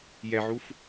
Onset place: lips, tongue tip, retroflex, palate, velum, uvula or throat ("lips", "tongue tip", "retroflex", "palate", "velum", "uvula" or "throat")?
palate